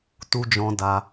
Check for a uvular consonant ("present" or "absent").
absent